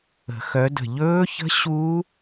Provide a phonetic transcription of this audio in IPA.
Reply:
ə̤˨˩˦ x œ˨˦ d ə̤˧˩ ʎ ɵː˦˥ ç ə̤˦˥ ɕ u˦˥

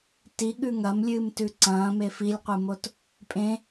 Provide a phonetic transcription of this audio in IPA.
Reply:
t i ɠ ʉ ŋ ɐ m lʲ ɨː m t ʉ ǀ ɐ̃ː m e f i lʲ qʷ ɨ m o t | pʼ ẽ

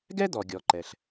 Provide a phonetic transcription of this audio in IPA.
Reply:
ɡ ɛ˥ d̪ ɔ˩ ɡʲ ɔ˩ ǃ ɛ˩ ɬ

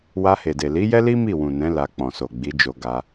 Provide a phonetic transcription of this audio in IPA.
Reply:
w a˧ h e˨ d e˨ l i˨˦ j ɛ˦ l i˦ m i˦˨ w ũ˨ n ɛ̃˨˦ l a˧ k͡p ɔ̃˨ s o˨ ɡ͡b i˨˦ d͡ʒ o˧ ɡ a˧

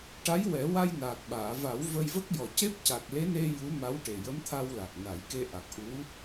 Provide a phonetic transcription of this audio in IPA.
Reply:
ʈ a˧˥ j w ɛ˨˩˦ w a˧ j n aː˨˩ k̚ ɓ aː˨˩˨ v a˨˩˦ w v ə˧ j v ə˦˥ k̚ j ɔ˨˩ c e˦˥ p̚ c a˨˩ k̚ l e˧˥ n e˧ j u˧˥ m a˧˥ w ʈ e˨˩ j ə˧˥ m t̪ʰ a˧ w l a˨˩ k̚ n a˨˩˦ j k e˧ ʔ a˨˩ k̚ ʔ u˧˥

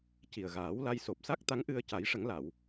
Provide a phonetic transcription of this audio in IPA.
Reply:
c i˨˩ ə̯ ɣ aː˨˩˦ w l a˧ j s o˨˩ p̚ s a˦˥ k̚ t̪ a˧˥ ŋ ʔ ɨ˧ ə̯ c a˨˩˦ j ʂ ə˨˩˦ ŋ l a˨˩˨ w

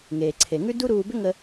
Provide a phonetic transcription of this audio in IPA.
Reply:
ŋ eː˩ ǀʰ e˩ ŋ ʉ˥ d u˥ ɾ uː˧ b ʏ˥ ŋ ə˧

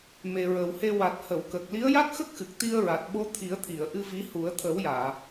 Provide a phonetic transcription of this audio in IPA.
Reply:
m e˨˩ ɹ ə˨˩ w h e˧ w a˨˩ t̚ h ə˨˩˨ w k ə˨˩ k̚ l i˧˥ ə̯ j a˦˥ k̚ x ə˦˥ k̚ x ɨ˨˩ k̚ t̪ i˧ ə̯ ɹ a˨˩ t̚ ɓ o˧˥ t̪ʰ i˨˩˦ ə̯ t̪ʰ i˨˩˨ ə̯ ʔ ɨ˧ v i˧˥ h u˨˩˦ ə̯ t̪ʰ ə˨˩˦ w j aː˨˩˨

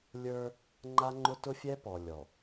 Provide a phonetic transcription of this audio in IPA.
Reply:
lʲ ə˞˦ | ŋ͡ǃ a˦ ŋ͡ǃ ʊ˦ t ʊ˦ fʲ ɛ˦ p ɔ˨ lʲ ɔ˨

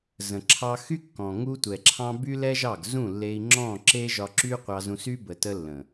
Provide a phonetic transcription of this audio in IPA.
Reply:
z ə̃˨ ǁʰ ɑ˧ x y˦ kː ɔ̃˨ ŋ u˧ tʷ ɛ˨ ǁʰ ɑ̃˧ b y˦ l ɛ˦ ʒ ɑ˦˨ ɡ z ũ˦˨ lː e˧ i̯ ŋ͡ǁ ɔ̃˦˨ ǁ e˦ ʒ ɒ˧ ǁ y˦ qʷ ɑ˧ z ũ˧ s y˦ b ə˨ t ə˧ lː ə̃˨

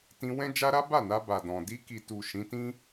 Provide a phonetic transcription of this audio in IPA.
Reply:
t ĩ˧ w ɛ̃˦ d͡ʒ a˦ ɾ a˦ b a˦˨ n a˧ b a˨ d ɔ̃˨ d i˧ k i˨ t u˨ ʃ ĩ˨˦ t ĩ˦

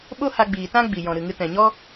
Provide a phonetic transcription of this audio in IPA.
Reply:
ɓ o˦ h a˧ ɡ͡b iː˨ t ã˦ ɡ͡b i˨ j ɔ̃˨ ɾ ɨ˨ ŋ ɨ˧ t ɛ̃˨ ɲ ɔ˦

